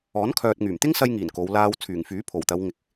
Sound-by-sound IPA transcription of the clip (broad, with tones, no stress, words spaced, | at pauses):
ɔː˨˥nkʰœː˨t̚ŋyː˨˩m t̪ɪ˥ŋsɐ˧jŋiː˨˩n ko˨˧w laː˧w t͡sʰyː˨˩ŋfyː˨˥pʰo˨˩wt̪ɐ˨˧w ŋɪ˨k̚